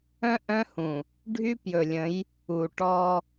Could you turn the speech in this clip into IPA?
œ̃˦ ʔ œ̃˦ h ũ˨ | ɖʱ y˦ p j ɵ˨ lʲ ə̃˨˦ j | u˨ ʈ ɔ˦

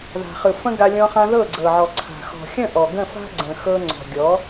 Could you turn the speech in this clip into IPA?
ð a̤˨ χ ɯ˨ f ə̃˦ ɡ a˧ lʲ ɔ̃˧ χ ã˧ ð ɤ˦˨ ɡ͡ǀ ɤ˨ ʕ ɔ˨ ǀʰ a̤˨ x ɔ̤˨ xʲ ə̃˦˨ ʔ ɔ˨ ɡ ə̃˦˨ f a̤˦ ɡ͡ǀ ə̃˨ x ɤ˧ ŋ͡ǀ ɔ̤˨ ɡʲ ɔ˨˦

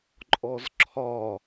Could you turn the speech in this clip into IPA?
ǃʼ ɔ z ǁʰ ɒ

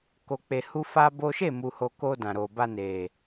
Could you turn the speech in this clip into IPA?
k o˨ k͡p e˨ h u˧ f a˦ b o˦ ʃ e˦˨ m u˨ h o˨ k o˧ d ã˨ ɾ o˨ b a˧ n e˨

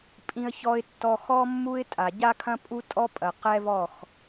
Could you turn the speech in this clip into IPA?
pʼ ĩ˨ ə̯ ç ɔ˨ ɪ̯ tː ɔ˨ x ɔ˦ mː u˦ ɪ̯ tʼ a˨ ɟ a˦ kʰ ɐ̃˦ pʼ u˦ tʼ ɔ˦ pʼ ɐ˨ q ɛ˦ v ɔ˦˨ x

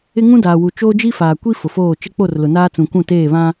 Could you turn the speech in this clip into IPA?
ɪ˦ ŋ ũ˦ d aː˨ w u˨ t͡ʃ oː˦ d͡ʒ i˦ f aː˨ kʷ i˦ f ʊ˨ f oː˦˨ t͡ʃ ɪ˦ k͡p o˦˨ r l ʊ˨ n aː˦ t͡s ũ˨ kʷ ũ˦˨ t eː˦˨ β ã˦

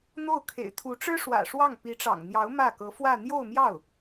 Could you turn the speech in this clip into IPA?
n̪ o˥˩ ʊ̯ kʰ ḛ˨˩ ɪ̯ t̪ʰ u˧˥ ʈ͡ʂ ɻ̩˥ ʂ w ä̰˨˩ ʂ w ɑ˥˩ ŋ p i˧˥ ʈ͡ʂ ɑ̰˨˩ ŋ n̪ j ɑ˧˥ ʊ̯ m ä˥˩ k ɤ˧˥ f w ä˥˧ n̪ j o˥˧ ʊ̯ m j ɑ˥˩ ʊ̯

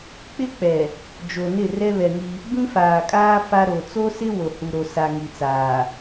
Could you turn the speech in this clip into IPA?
k͡p ɪ˦ k͡p ɛ˨ | d͡ʒ o˨ n ɪ˦˨ r ɛ˦ β ɛ˨ ŋ i˦ | b ĩ˦ f aː˨ kʼ aː˦ f a˦ ɾ o˨ t͡s o˦ s ɪ˦ w o˨ h u˨ ɾ o˨ s a˨ ŋ i˨ t͡s aː˨

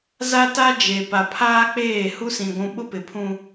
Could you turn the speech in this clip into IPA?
z a˦ t a˦ d͡ʒ e˨ p a˨ pʰ aː˦ k͡p eː˦˨ h u˦ s ĩ˨ ɡʷ ũ˨ ɓ ʊ˦ p ɪ˨ pʰ ũ˦

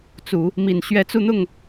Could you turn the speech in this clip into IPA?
t͡s u˨˩˦ | m i˨˩ n ɕ ɥ ɛ˧˥ t͡s u˥˧ n̪ ʊ˥˩ ŋ

